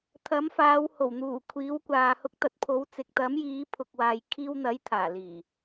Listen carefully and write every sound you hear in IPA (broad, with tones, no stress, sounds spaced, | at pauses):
t̪ʰ ɐ˨˥ m f aː˨˧ w h o˨˩ w n̪ uː˨˩ kʷʰ iː˨˧ w kʷ aː˨ h ʊ˧ k̚ t̪ ɐ˨˥ t̚ pʰ o˨˧ w t͡s ɪ˨ k̚ t̪ ɐ˨˥ m j iː˨˧ pʰ ʊ˨ k̚ w aː˨ j kʰ iː˧ w n̪ ɐ˨˥ j t̪ʰ aː˨˩ l iː˨˩